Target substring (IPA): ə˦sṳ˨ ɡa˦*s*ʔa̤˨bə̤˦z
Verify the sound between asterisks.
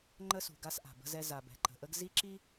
correct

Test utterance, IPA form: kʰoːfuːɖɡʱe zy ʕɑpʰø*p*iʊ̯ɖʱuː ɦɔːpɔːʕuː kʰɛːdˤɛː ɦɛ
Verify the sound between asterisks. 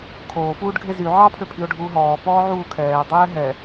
incorrect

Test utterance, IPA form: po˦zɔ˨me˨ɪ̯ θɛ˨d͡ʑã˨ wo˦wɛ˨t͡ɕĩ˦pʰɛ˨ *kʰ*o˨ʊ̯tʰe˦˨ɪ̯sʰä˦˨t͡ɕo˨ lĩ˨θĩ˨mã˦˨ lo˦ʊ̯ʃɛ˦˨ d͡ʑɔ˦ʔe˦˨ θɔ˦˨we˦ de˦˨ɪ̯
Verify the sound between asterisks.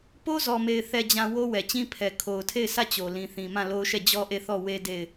correct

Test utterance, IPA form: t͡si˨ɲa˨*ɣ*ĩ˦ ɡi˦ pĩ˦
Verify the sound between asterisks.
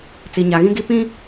correct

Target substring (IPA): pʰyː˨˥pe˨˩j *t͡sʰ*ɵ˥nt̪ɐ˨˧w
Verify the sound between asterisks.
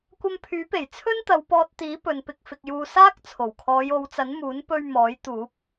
correct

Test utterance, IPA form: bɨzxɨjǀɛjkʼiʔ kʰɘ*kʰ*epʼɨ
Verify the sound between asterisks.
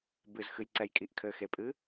incorrect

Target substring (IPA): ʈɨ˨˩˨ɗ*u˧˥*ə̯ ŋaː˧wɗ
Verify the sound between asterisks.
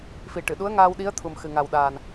correct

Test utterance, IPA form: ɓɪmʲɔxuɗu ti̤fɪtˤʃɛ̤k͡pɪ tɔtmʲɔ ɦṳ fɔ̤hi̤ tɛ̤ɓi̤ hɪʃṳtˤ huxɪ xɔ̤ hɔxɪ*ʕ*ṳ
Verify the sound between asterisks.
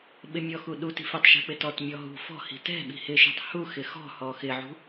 correct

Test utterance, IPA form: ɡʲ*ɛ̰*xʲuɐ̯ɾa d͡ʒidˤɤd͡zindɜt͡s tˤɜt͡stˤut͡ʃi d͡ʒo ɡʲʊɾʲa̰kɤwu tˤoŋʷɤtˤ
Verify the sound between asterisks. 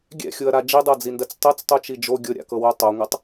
correct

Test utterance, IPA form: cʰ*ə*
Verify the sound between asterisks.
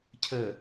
correct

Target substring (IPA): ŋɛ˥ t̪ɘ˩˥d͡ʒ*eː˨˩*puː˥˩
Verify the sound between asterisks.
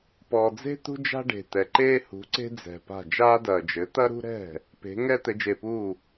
incorrect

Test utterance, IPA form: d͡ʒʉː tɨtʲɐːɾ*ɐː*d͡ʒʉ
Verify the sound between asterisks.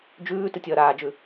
incorrect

